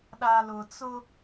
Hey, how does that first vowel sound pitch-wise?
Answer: low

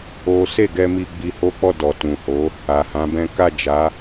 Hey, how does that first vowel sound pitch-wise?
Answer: high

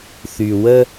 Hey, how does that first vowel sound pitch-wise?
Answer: low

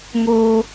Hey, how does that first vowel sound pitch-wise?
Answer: high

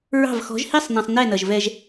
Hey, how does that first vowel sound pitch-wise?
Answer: falling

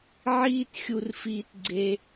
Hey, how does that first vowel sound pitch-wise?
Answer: high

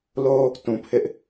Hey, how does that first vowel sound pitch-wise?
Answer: high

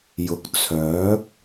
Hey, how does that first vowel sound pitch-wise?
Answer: rising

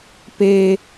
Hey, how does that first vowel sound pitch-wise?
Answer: low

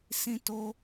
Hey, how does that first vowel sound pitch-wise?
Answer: high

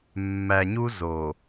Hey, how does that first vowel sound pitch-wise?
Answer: low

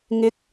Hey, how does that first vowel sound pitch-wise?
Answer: rising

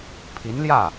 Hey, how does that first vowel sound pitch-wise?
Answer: rising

